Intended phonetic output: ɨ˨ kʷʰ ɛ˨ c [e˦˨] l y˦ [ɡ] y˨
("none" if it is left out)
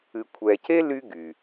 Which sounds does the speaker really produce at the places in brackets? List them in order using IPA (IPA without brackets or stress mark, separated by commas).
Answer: e˦, ɡ